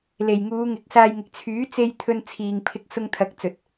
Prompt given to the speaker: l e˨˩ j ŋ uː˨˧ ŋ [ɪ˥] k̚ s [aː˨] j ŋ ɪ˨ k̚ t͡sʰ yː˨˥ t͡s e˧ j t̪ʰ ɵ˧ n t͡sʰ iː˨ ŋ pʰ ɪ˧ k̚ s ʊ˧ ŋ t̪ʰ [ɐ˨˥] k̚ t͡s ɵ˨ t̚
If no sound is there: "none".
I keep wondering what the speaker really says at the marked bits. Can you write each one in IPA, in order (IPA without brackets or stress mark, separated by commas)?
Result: ɪ˨˥, aː˧, ɐ˨˥